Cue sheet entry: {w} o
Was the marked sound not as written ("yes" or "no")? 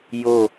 yes